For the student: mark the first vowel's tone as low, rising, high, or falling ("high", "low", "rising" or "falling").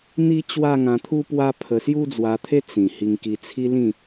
high